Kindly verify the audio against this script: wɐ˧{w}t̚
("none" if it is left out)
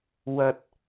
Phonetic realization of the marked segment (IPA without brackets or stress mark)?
none